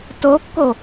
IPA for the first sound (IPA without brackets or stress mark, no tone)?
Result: t